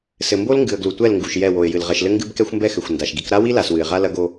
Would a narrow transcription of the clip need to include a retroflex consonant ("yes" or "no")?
no